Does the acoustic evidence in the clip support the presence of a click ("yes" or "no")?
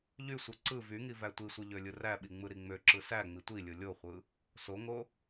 yes